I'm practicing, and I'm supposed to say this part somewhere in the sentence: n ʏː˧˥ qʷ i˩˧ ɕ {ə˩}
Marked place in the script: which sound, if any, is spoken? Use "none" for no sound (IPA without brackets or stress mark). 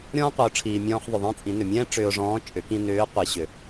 ʏ˩